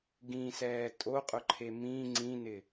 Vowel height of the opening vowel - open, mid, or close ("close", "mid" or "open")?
close